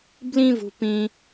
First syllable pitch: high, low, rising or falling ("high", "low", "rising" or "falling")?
high